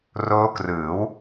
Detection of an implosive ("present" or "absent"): absent